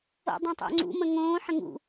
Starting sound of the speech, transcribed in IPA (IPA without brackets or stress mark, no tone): o̰